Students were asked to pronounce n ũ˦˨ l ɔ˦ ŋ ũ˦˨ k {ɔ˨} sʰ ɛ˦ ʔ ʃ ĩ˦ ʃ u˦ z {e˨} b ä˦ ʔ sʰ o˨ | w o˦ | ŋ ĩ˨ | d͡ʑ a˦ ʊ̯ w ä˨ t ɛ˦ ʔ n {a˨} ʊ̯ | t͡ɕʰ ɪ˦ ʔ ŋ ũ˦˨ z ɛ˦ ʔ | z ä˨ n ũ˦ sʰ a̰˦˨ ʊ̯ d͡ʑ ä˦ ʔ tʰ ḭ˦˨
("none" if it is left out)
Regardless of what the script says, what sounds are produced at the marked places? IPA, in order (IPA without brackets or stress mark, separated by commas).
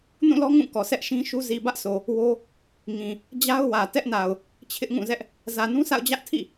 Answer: ɔ˨, i˨, a˨